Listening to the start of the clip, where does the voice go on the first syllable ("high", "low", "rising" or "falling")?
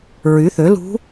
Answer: rising